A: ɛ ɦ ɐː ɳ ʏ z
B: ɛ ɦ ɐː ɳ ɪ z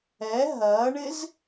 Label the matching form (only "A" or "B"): B